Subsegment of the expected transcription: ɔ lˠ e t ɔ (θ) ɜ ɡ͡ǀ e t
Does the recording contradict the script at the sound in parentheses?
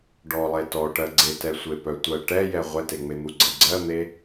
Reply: yes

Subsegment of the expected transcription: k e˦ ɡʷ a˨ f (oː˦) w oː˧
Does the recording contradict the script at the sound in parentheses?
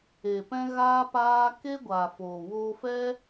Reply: yes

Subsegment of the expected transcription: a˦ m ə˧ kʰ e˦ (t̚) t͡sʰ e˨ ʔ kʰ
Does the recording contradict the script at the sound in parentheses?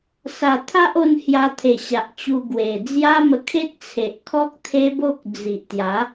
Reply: no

